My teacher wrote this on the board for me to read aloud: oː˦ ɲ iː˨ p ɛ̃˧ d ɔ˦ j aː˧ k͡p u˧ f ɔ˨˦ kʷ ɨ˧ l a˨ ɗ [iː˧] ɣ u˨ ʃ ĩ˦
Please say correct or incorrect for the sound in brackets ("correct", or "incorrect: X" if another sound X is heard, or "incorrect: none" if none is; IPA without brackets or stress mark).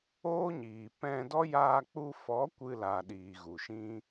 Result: incorrect: iː˨